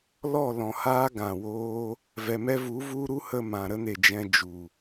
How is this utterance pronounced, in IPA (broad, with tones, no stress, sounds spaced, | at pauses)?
l ɔ˦˨ l ɔ̃˨ h aː˦ ɡ ã˨ w oː˦ | v ɛ˨ m ɛ˦ v u˨˦ v u˦ ɾ u˦ h ə˧ m ã˨ ɾ ə˦ n e˨ d͡ʒ ɛ̃˧ d͡ʒ u˨